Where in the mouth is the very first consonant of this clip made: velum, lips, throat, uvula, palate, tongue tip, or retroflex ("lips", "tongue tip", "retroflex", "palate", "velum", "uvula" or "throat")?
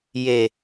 palate